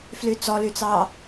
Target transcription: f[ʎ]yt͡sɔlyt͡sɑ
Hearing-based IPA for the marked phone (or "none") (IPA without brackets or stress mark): l